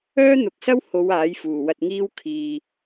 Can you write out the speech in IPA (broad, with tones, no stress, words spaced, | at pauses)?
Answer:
œː˥n̪ʊ˨˥k̚sɐ˥w ho˨˧w aː˨˥jfuː˨˩wɐ˧t̚ŋiː˥w kʰiː˨